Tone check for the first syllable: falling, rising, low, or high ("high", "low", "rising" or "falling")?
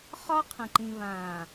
high